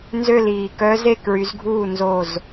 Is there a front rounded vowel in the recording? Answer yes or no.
yes